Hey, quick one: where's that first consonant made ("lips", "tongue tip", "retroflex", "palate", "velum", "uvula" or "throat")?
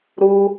tongue tip